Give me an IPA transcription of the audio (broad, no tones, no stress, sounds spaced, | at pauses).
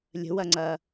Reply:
lʲ ə̤ w ɐ ŋ͡ǀ ɐ